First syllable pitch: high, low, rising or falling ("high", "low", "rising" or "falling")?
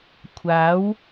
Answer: rising